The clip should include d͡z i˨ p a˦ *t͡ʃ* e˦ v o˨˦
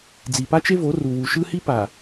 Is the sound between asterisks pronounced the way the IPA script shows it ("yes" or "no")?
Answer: yes